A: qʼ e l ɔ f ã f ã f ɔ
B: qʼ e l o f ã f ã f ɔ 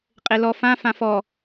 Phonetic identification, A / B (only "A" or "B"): A